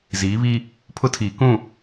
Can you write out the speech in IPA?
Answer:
ziː˨˦βi˦ | pʰʊ˦tʰiː˨kũ˦˨

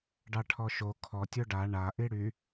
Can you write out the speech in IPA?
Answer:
ɖɑʈʰɔʃo kʰɔ tʲoɖa ɳa ʔiɽy

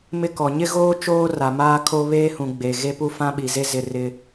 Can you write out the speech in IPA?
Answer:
mɪ˦kɔ˨ ɲɪ˦ɣoː˦ t͡ʃoː˦ra˨ maː˦kʰo˦ βeː˦hũ˨ ɡ͡be˨ ɣe˦pu˦ fã˦ɓi˨ze˦zɪ˦˨ rɪ˦

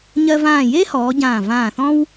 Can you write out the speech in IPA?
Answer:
ɲɜ˧vãː˧˩je˥hɔː˩˧ ɟãː˧˩vãː˧˩θɔ̃˥w

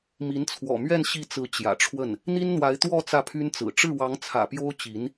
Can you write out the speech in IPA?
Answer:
mi˧˥nt͡sʰwɔ̰˨˩mɥɛ˥˧n ɕi˥˩t͡sɹ̩˧˥ t͡ɕjä̰˨˩ʈ͡ʂʰwə˥˩n | n̪i˥nn̪wa˧˥ɪ̯ t̪wɔ˥˧ t͡sä˥˩pʰy˥nt͡sɹ̩˨˩ ʈ͡ʂɻ̩˥˩wɑ˧˥ŋt͡sʰä̰˨˩ pjo˥ʊ̯t͡ɕi˧˥n

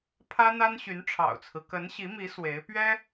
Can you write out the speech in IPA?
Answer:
pʰä˥n̪a˥n ɕy˧˥nʈ͡ʂʰɑ̰˨˩ʊ̯t͡sʰɹ̩˦ kə˧˥nɕi˧˥mi˧˥ swe˧˥ɪ̯pɥɛ˥

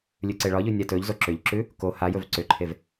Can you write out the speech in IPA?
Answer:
lʲʉǀeɭɒʎʉ nʲatɵʎzo ǁʏʎǁʉ | ko ha jɵvǀʏǃʰev

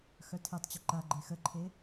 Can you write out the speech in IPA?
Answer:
xœtʰetˤt͡ɕʏ ǃaɡ͡ǃe xəǃʰe

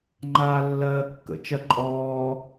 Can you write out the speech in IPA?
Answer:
ŋ͡ǃaːlːɜːkːə̰ t͡ʃɜǃʼɔː

